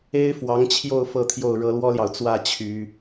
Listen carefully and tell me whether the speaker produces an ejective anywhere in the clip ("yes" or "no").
no